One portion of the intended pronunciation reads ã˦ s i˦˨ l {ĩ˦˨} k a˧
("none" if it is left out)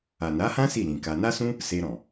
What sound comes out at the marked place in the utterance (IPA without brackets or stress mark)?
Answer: ĩ˨